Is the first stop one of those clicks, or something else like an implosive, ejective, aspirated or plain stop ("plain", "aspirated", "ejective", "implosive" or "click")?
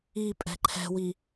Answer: ejective